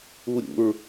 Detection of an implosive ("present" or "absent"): absent